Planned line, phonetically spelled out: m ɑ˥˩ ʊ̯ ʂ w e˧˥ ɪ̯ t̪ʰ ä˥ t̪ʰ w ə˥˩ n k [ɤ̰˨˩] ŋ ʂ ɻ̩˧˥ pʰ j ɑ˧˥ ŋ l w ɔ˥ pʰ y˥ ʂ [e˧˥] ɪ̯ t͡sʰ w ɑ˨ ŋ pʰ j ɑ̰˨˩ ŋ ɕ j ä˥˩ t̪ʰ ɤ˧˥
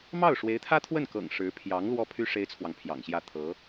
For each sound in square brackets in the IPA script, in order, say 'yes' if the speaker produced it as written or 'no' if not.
yes, no

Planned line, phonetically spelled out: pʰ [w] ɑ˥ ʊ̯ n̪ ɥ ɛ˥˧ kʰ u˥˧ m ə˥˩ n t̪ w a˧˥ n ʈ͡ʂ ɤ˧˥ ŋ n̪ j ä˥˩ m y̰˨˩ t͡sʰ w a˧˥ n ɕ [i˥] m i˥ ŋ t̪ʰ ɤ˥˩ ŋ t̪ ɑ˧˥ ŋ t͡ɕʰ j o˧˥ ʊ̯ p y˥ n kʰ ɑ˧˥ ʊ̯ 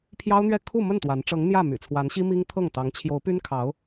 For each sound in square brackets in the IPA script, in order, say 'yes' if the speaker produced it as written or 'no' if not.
no, yes

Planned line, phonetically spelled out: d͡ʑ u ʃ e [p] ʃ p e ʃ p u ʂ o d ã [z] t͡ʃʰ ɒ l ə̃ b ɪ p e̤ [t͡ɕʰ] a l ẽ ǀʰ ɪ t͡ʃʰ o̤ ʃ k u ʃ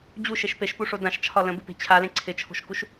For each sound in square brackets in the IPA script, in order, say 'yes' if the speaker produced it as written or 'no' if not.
no, no, yes

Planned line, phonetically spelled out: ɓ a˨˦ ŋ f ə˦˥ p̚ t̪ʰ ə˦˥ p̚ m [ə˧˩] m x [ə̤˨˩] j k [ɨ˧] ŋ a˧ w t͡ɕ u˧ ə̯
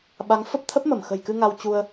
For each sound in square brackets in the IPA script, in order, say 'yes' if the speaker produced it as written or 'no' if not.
yes, yes, yes

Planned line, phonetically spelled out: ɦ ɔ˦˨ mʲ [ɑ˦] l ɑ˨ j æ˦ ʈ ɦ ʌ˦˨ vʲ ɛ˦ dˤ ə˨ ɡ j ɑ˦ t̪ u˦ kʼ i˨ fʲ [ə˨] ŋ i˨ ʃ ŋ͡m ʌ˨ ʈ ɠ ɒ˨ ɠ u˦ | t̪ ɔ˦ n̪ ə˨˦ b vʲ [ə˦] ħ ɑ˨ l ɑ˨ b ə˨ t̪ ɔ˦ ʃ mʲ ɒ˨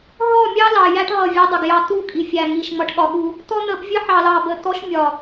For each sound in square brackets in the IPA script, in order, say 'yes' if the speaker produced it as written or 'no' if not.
yes, no, yes

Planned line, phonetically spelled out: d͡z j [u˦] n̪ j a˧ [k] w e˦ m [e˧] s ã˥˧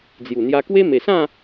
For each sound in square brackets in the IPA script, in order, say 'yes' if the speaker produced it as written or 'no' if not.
no, yes, no

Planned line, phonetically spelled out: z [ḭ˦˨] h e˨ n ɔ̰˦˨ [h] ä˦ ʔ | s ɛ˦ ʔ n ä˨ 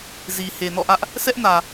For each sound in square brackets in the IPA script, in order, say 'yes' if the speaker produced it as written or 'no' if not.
no, no

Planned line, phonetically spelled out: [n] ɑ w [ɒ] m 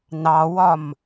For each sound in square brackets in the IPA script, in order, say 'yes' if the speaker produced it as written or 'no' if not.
yes, yes

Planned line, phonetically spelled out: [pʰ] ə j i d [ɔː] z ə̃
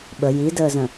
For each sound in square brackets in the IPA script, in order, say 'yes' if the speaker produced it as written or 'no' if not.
no, no

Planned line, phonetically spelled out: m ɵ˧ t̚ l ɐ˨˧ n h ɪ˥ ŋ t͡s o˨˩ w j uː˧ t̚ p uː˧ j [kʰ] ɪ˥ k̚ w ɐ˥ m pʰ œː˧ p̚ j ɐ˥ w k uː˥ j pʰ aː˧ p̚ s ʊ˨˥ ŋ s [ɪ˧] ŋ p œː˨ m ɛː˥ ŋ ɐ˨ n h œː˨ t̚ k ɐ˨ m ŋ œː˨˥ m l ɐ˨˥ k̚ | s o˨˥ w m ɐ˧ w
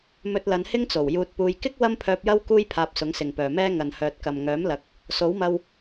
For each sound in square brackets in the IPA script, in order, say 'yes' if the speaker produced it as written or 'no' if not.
no, no

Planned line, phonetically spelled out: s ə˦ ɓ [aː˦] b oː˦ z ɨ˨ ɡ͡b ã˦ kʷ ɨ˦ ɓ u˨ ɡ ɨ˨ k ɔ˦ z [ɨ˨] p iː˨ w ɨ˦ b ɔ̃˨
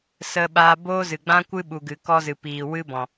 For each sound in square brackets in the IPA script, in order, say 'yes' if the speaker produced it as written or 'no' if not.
yes, yes

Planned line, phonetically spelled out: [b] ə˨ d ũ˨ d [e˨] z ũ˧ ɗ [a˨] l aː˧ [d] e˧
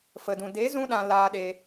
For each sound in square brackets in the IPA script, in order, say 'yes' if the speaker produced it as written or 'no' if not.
no, no, no, no

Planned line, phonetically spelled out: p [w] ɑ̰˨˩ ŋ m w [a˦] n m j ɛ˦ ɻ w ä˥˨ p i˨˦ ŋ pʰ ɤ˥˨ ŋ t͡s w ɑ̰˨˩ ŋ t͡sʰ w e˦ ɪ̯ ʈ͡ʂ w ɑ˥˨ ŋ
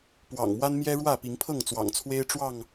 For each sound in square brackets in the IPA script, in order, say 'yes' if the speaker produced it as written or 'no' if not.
yes, yes

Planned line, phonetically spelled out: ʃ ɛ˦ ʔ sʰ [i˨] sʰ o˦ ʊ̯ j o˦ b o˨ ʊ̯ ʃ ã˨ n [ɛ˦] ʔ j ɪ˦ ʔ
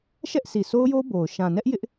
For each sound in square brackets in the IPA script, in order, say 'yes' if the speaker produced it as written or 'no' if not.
yes, yes

